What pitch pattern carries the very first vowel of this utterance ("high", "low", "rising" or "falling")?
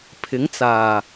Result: rising